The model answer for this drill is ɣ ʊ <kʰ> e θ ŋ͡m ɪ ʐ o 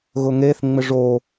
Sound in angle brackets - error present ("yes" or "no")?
yes